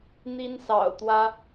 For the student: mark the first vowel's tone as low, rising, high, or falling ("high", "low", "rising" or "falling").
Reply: high